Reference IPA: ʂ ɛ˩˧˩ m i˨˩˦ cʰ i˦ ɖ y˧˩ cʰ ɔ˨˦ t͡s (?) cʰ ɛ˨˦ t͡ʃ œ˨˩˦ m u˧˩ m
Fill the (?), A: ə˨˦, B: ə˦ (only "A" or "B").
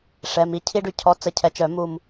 A